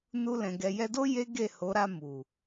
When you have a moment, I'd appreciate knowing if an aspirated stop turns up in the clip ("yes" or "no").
no